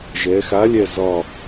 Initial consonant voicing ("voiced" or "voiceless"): voiced